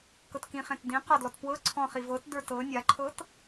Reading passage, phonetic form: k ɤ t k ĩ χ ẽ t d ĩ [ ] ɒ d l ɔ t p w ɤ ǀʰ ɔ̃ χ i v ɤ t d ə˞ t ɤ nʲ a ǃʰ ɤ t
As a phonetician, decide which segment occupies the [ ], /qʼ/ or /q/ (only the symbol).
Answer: q